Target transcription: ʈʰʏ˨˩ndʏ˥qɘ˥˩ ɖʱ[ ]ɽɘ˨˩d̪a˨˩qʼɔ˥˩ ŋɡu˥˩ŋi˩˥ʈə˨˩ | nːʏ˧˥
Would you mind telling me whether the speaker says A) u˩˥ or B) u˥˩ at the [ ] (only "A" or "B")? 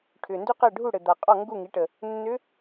B